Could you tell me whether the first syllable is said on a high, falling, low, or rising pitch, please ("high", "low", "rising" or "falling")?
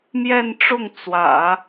falling